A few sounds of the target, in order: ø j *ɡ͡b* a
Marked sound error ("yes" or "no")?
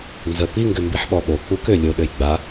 no